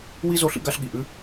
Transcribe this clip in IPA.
w i˥ z o˥ ɬ ḭ˥ ɡ a˥ ɬ ɠ i˩ ʔ ʉ˥

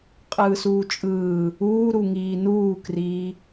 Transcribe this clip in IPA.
qʼ ɯː s uː t͡ʃʼ ɯː | uː ɾ u ŋ iː n uː k r iː

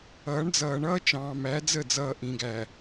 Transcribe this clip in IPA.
ʌː˨˦ ɳ d͡z ʌː˨ ɳ ʌː˦ t͡ʃ ɑ̃ː˨ m æ˨˦ d͡z ə˦˨ d͡z ʌː˨ ʔ ĩ˨ ɡ æ˨

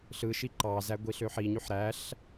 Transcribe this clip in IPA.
ɬ ɯ ʃ i ǃ ɑ z æ ɡʷ i ɬ ø ħ i ɲ y ħ ɾ æ ɬ

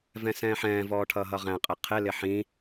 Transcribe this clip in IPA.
v ɛ̃ s ɛ̃ː ħ ɛ̃ː v ɔː ʈʰ ʌː ɦ ʌ ʁ æ̃ qʼ ɛ qʰ ɪ l ɪ ħ ĩ

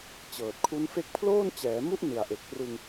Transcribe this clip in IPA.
t͡ɕ ɤː˨˩ t̚ kʰ u˦˥ n f e˦˥ k̚ pʰ l oː˥˩ n t͡ɕ ɛː˩˦ m u˥˩ ʔ n ɯ˨˩ a̯ ʔ e˨˩ k̚ p r ɯ˧ ŋ

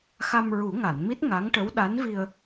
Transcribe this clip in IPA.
x a˧ m ɹ u˨˩˦ ŋ a˨˩˨ n m i˦˥ t̚ ŋ a˧˥ ŋ ʈ ə˧˥ w ɗ a˧˥ n v i˧ ə̯

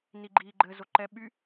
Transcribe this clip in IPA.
n i ɡ͡ǃ iː ɡ͡ǃ ɘ z o ǃ ɛ ɓ y

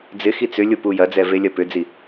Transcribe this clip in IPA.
d͡z ɪ x i t͡s ʏ lʲ ʊ p u j ɐ d͡z ɛ v e lʲ ɐ p ʏ d͡z i

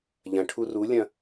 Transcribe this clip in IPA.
ʎ ɐ̃ ʈʰ u r u lʲ ɐ̃

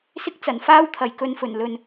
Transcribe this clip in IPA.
s ɪ˥ k̚ t͡s ɐ˨˩ n f aː˥ w t̪ʰ ɐ˨ j k ɵ˧ n f ɵ˨˩ n l ɵ˨ n

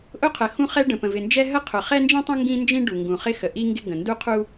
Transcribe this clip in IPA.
ʔ ʊ˥ qʰ ə˩ x ũ˥ χ ɛ˥ ɖ ə̃˩ p ə̃˩ v ɪ˩ n d͡ʒ ɛ˥ ɦ ə˥ qʰ ʊ˩ χ ɛ˥ n d͡ʒ ĩ˥ tˤ ə̃˥ ŋ ɡ ĩ˥ n d͡ʒ ĩ˥ ɖ u˩ ŋ ɡ ũ˩ χ ɪ˥ x ə˩ ʔ i˥ ŋ ɡ ɪ˥ ɡ ə̃˩ n d u˥ qʰ u˥

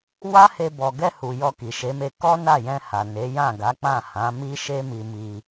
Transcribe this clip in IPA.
w a˦ h e˧ b ɔ˨ ɡ ɛ˧ h u˨ j ɔ˧ k i˨ ʃ e˨˦ m e˧ k ɔ˦ n a˦˨ j ɛ̃˧ h a˨ n e˨˦ j ã˦˨ ɡ a˨˦ k͡p ã˦˨ h ã˨˦ m i˦ ʃ e˦ m i˧ m i˧

